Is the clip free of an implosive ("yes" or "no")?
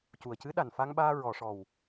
no